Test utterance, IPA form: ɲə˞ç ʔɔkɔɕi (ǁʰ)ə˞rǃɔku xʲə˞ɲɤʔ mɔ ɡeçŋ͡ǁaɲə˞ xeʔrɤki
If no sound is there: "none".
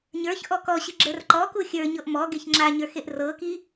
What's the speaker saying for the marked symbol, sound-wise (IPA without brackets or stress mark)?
ɡ͡ǁ